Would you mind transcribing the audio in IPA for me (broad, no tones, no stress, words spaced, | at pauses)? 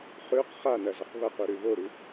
χʉq χanɐzɐq βɐquɾʉ βoɾʉ